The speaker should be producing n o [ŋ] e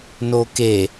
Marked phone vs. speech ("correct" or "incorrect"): incorrect